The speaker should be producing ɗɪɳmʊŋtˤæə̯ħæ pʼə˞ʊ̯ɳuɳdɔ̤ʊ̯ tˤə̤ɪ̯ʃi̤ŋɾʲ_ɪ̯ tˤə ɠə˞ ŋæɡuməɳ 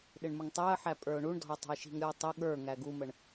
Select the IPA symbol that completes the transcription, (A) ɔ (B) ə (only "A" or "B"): A